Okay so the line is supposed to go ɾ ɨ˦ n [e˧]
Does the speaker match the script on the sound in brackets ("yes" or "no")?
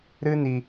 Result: no